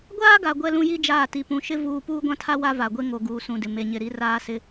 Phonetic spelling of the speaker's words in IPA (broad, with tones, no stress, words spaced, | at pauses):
ɡʷaː˦ɡa˨ ɡʷɛ˦lũ˦ji˦d͡ʒaː˦˨ ti˨pũ˨ʃɪ˦ vuː˦ puː˦ɡʷã˦tʰa˦ wa˦va˨ɡʷe˦ ŋo˨ ɡuː˨sũ˨dɪ˨ me˨ɲɪ˨ɾi˦ raː˦sɪ˦